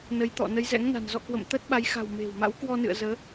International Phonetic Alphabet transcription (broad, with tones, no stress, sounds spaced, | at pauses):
n ə˨˦ j t̪ ɔ̰˧˨ n ə˨˦ j z ɛ̰˧˥ ŋ n a̤˨˩ n z ɔ̰˧˨ k w ə̰˧˨ m t̪ əː˦˥ t̚ ɓ a˨˦ j x a̤˨˩ w m e̤˨˩ w m a̰˧˥ w k w ɔ˧ n ɨ̰˧˨ ə̯ z əː˨˦